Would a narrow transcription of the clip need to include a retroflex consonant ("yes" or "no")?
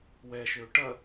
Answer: yes